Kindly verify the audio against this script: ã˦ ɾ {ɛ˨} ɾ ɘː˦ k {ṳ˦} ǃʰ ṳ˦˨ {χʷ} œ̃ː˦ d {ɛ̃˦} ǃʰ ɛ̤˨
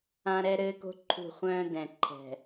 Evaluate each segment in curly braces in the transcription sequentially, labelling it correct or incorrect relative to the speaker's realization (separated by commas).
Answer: incorrect, incorrect, correct, incorrect